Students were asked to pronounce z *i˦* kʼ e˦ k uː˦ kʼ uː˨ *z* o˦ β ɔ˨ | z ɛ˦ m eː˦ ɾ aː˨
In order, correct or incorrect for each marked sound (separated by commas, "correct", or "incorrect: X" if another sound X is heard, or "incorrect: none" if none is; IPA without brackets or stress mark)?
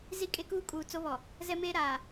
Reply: correct, incorrect: t͡s